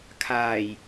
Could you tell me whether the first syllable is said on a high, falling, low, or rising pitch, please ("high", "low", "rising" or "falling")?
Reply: low